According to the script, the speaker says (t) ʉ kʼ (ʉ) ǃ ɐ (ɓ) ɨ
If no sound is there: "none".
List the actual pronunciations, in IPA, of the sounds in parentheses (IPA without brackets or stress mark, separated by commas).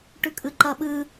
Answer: ʈ, ɨ, ɓ